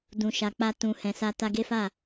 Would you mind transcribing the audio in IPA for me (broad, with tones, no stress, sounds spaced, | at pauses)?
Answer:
d ũ˨ ʃ a˨ k͡p a˧ t ũ˨ h ɛ̃˨ s a˧ t a˧ ɡ e˦ f a˦˨